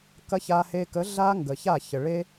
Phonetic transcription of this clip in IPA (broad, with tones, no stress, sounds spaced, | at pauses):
k ɐ˦ ç a˦ h e˦ k ə˨˦ ɮ a˦ ŋ ɡ ə˨ ç a˦˨ ç ə˨ ɭ e˦